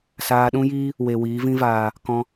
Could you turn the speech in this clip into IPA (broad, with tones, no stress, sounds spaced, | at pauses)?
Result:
s aː˧ ɗ ũ˦ j iː˦ | w e˨ w iː˨˦ v ĩ˧ v aː˨ | k ɔ̃˧